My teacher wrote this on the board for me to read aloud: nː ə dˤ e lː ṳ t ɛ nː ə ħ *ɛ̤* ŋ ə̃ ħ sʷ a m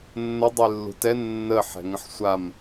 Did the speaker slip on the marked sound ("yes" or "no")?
no